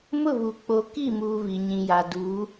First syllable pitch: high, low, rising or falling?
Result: falling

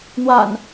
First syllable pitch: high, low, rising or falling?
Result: low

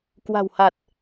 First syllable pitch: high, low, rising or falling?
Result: low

